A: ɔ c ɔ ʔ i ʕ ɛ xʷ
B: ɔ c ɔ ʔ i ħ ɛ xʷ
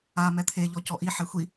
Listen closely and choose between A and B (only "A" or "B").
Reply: B